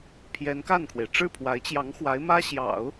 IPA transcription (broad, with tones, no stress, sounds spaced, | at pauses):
pʰ j ɛ˧˥ n k a˥˩ n kʰ w e˩ ɪ̯ ʈ͡ʂ ɻ̩˥˩ pʰ w a˧˥ ɪ̯ t͡ɕ j ɑ˧˥ ŋ x w a˧˥ ɪ̯ m ä˥ ɕ j ɑ̰˨˩˦ ʊ̯